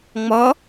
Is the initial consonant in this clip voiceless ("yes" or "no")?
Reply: no